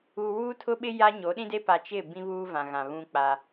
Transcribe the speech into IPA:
u˨ wuː˦tʰʊ˦ɓɪ˦ ja˦ɲo˨˦ɗĩ˦de˦ pa˨t͡ʃɪ˦˨ bĩ˦βuː˦vã˨ ɣã˨ βũ˦k͡pa˦

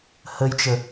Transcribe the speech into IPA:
həjt͡ʃə

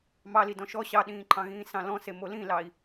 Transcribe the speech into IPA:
mɑli dɔ̃ʃɔ ɕɑɗĩːǃʰɑ̃ɣĩː sɑ̃lɔ̃se molĩlɑi̯

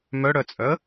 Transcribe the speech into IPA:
mœɽœt͡sʼœə̯

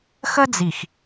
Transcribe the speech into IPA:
xə˦d͡zi˨x

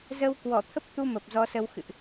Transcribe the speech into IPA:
zə˧wkwɔ˧˩t̪ʰə˦˥p̚t̪u˧ mə˨˩p̚zɔ˨˦sə˧w xɨ̰˧˨ʔ

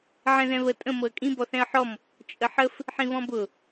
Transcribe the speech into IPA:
ʕɛ̃ðɛ̃βə tʼə̃ mɤə̯kʼĩ bɔθɛ̃ə̯ħɔm | t͡ʃʼəħəf | ħĩβɔ̃bʊ

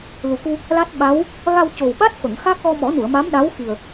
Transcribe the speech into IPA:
lu˨˩ku˧ | la˦˥t̚ɓa˧˥w | ɣa˧wco˨˩wɓa˦˥t̚ fə˨˩˨ŋxa˦˥k̚ ɣɔ˧mɔ˨˩˦nu˨˩˨ə̯ma˧˥m ɗa˧˥wxi˨˩ə̯

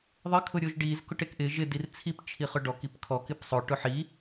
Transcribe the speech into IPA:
ðˤɪ kʰʊɾʲoʒɖiz kʊʈekʔɪ ʒɪ dirt͡sʰip t͡ʃʰiχʊɖɔk ipkʰɔ kɪpsˤʊ ʈʊħi

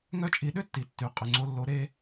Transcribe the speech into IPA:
ŋœ˥t͡ʃʼi˧ ɗʏ˥tːi˩tːy˩ qʼʏ˩ŋ͡ǀo˧lːo˧ ɾe˥

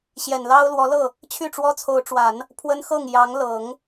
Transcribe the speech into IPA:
ɕjɛ˨˩nlɑ˥ʊ̯lwɔ˧˥lɤ˥˩ | t͡ɕʰy˥˩ʈ͡ʂwɔ˥t͡sʰo˧˥ʊ̯ʈ͡ʂwa˨˩˦n | pʰwə˥nxɤ˥˩ŋ jɑ˧˥ŋlɤ˨˩˦ŋ

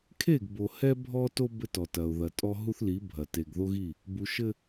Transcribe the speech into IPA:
kʰe˦˨ɡbo˨ hɛ˦bʱɔ˦ to˦ bɘ˦tɔ˨ tɐ˨ʊ̯ðɐ˨tʼɔ˦ ɦu˦θli˨˦ bʱɐ˨ te˨ɡðo˦ɣi˦˨ | bu˨ʃɘ˦

